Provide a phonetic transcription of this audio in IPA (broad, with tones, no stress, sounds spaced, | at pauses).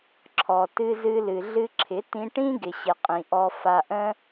ǁʰ ɔ˨ t ɨ˧ z ɨ˧ l ɨ˨ ɮ ɨ˧ ǁʰ ɪ˨˦ t ĩ˧ ʈ ĩ˦ ɡ ɪ˨ ɕ ɪ˨ qʼ ĩ˨ ʔ ɔ˧ f a˧ ʔ ə̃˦